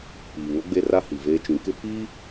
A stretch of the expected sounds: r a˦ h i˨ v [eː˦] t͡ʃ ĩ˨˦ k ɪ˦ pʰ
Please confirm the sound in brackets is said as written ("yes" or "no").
yes